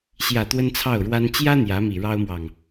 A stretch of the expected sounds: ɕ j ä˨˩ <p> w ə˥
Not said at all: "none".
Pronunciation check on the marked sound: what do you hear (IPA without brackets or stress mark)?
t̪